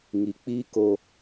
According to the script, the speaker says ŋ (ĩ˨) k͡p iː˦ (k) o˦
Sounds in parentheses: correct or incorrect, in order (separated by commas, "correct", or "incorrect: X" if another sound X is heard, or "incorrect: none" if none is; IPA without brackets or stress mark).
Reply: incorrect: i˨, correct